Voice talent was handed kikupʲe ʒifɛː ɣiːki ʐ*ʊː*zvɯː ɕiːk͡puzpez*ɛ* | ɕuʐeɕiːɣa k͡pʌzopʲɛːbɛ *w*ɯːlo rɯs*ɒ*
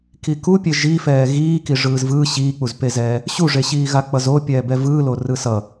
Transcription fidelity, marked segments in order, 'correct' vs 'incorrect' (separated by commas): incorrect, incorrect, incorrect, incorrect